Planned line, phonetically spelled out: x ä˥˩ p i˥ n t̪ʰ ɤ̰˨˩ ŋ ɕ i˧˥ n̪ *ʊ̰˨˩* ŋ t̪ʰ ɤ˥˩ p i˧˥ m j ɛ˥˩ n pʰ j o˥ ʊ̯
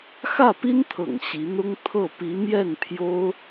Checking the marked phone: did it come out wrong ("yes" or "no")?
yes